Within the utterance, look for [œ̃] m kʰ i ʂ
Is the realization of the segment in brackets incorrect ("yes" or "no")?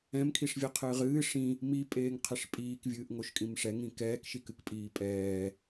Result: yes